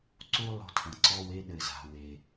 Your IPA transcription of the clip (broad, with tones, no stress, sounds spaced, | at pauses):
ǀ u˦ lˠ o̤˦ tʰ ɐ̃˩ ǀ ɔ˥˨ w e˦ ɗ ɘ˩ z a̤˩ w e˩